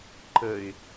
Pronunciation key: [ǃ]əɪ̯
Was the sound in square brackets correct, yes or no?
yes